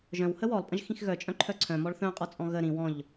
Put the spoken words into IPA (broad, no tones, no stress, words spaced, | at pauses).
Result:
ʒœ̃whə wɔlˠpʼə̃ʒxĩx ɣœt͡ʃʼœ̃ǃʰœ ǀʰœ̃mɔɭ θœ̃qʼɔt͡sʼɔ̃ ɣə ɾĩ wɔ̃ʎ